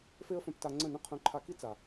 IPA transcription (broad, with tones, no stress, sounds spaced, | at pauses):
f e˦ ə̯ f œ̃˧ p t a˧ ŋ͡ǀ ə̃˦˨ n ə̃˦ qʰ œ̃˧ ǃʰ a˧ k i˦ t͡s a˨